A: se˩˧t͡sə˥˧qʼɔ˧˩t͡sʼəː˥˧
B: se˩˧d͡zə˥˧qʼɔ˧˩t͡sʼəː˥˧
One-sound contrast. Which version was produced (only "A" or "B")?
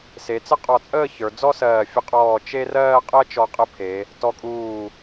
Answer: A